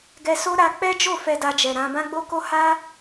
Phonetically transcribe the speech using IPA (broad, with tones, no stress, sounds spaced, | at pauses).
ɡ ɛ˧ s o˦ ɾ a˧ k͡p ɛ˦ d͡ʒ o˦˨ f ɛ˧ d a˧ d͡ʒ ɛ˨ ɾ ã˧ b ã˦ ɡ͡b o˦ k o˦ h a˦